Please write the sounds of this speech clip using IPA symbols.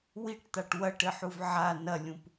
w i ʈ t̪ a ʈ w ɐ ʈ ɘ ħ u v ʕ a n ɐ lʲ ũ p

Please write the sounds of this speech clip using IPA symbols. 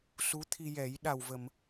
s u˧˥ t̪ʰ i˧ j ɛ˨˩˦ j ɗ a˨˩ w v ə˨˩˨ m

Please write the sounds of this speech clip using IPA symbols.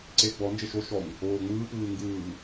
ǀ e ɡ͡b ɔ n d͡ʒ e ʃ o ʃ ɔ ɲ | oː ŋ͡m ɯː p ɯː ŋ ɡ ɯː

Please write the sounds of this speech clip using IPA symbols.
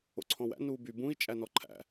o̰ ǀʰ ɔ̃ w æ̰ n uː b y b ũ i̯ t͡ʃʼ æ n ɔ ǃʰ æ̰

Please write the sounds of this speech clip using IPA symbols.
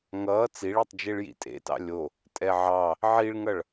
ŋ ʌː t͡s i ɭ e tˤ d͡ʒ e ɭ j ḭ tʼ ḛ t ɑ̰ lʲ o | tʼ ɛ ʕ ɑ | ʕ i ɭ ŋ ʌ ɭ

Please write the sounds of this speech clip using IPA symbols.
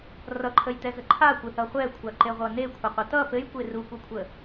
r ʌ ǃʰ ə j t ɛ z ə ǃʰ a kʷ ɘ θ ʌ χʷ ɛ kʷʰ a ǃ e ʁʷ ʌ n e kʷʰ ɘ qʷ ɘ t ʌ p ɘ j kʷ e r u kʷ ɘ kʷʰ ə

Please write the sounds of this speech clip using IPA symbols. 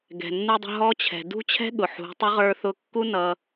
ɡ ɛ̤˩ nː u˧ dˤ ə̤˧ ɦ ɔ˧˥ t͡ɕʰ ɛ̤˩ d ṳ˥ t͡ɕʰ ɛ̤˥ ɠ ʊ˩ ħ ṳ˩˧ tˤ ʊ˧˥ ʁ ə˞˧ θ ʊ˧ kː u˥ n ʌ˧

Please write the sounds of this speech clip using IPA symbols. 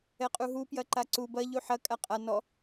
ɛ qʼ u ɦ u p j ɐ ǃ a ǀ u b ɐ ʎ u ħ ɐ kʼ a qʼ a n ɔ

